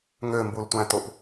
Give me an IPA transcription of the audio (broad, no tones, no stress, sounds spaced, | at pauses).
ŋ ø m b u l tʷ æ̃ t o p